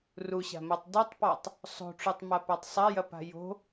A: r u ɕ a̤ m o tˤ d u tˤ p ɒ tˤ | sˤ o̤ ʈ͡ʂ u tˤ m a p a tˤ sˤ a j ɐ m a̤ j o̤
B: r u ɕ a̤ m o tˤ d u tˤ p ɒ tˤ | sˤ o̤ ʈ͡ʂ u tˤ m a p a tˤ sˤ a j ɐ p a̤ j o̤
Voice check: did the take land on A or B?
B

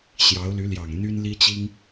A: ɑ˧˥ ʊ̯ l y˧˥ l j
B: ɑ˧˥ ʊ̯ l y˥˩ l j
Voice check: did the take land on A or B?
A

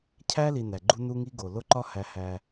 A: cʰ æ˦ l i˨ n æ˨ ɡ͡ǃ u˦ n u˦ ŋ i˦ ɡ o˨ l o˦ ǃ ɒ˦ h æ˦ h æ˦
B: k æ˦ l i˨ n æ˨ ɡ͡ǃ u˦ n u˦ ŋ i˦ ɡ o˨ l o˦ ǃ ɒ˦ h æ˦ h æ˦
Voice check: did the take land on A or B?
A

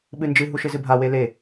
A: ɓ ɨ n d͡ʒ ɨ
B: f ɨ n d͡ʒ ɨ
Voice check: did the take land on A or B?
A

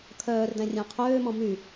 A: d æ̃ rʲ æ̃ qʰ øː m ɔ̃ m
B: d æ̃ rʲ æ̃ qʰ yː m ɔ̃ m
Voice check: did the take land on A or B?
A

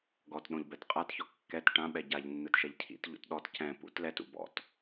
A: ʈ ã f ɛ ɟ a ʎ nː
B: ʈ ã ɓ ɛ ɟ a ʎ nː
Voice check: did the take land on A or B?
B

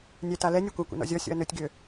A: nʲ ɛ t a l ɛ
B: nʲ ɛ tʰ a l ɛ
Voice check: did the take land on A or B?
A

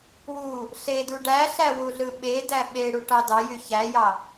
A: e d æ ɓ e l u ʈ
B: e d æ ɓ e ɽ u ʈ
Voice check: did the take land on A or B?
B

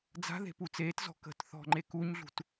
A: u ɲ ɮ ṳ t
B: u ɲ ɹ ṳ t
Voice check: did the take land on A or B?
A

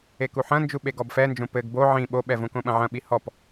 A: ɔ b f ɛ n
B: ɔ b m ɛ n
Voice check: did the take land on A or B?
A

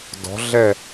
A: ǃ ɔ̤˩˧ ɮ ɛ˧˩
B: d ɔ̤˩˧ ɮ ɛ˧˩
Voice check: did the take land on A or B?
B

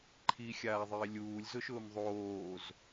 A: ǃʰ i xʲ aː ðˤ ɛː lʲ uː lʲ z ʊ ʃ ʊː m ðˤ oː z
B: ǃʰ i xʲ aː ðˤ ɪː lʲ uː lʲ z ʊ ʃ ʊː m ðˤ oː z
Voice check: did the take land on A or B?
B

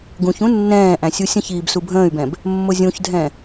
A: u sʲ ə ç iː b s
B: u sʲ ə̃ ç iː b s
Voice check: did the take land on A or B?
B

